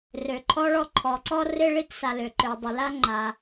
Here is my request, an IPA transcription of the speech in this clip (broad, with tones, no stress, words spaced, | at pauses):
rø˩ǃʰɔ˥ɭɔ˥ ǃʰɔ˩ǀɔ˥rɪ˥ ɭi˥tsa˩lø˩ǃø˩ dˤɪ˩la˥ŋ͡ǃa˩